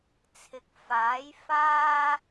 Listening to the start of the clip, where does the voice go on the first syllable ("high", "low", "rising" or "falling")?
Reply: rising